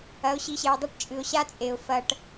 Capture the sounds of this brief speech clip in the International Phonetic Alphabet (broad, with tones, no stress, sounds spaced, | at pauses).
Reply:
ɐ˨˦ ʊ̯ ɕ i˨˦ ɕ e˨ ə̯ dˤ ɐ˥˩ ʈ t͡ʃʼ ɨ˨ ʊ̯ ɕ a˦ t͡sʼ e˨ ʊ̯ f ɐ˨ ʈ